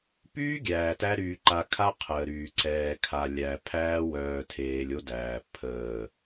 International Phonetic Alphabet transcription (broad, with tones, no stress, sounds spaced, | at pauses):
p yː˦ ɡʲ æː˨ t æ˦ ɾ yː˨ ǃ a˨ kʰ a˦ qʰ əː˨ ɾ yː˨ ǀ ɛː˨ kʰ a˨ lʲ æ˨ pʰ æː˦ w œː˨ tʰ eː˨ lʲ o˦ d æː˨ pʰ əː˦˨